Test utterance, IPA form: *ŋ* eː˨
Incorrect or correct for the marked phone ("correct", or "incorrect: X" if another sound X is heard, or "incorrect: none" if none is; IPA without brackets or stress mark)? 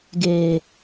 incorrect: ɡ